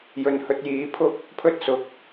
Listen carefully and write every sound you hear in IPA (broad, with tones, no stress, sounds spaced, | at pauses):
j ɵ˨ n h ɵ˧ t̚ j iː˨˧ pʰ ʊ˥ k̚ | pʰ ɵ˥ t̚ s ʊ˨ k̚